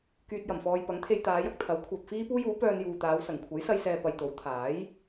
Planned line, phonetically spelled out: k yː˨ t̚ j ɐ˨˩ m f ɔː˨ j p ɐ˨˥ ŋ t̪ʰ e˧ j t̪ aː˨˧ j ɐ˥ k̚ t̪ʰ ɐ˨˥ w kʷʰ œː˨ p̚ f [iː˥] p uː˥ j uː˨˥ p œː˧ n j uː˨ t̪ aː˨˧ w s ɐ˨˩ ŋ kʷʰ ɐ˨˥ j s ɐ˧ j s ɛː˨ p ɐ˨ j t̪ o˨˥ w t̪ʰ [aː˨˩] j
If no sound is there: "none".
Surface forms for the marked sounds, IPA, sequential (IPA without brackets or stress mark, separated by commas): iː˥, aː˨˥